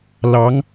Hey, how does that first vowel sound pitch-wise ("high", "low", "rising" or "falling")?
rising